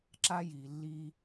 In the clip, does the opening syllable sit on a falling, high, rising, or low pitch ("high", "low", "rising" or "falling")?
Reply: high